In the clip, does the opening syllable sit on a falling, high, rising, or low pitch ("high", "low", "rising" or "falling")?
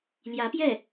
rising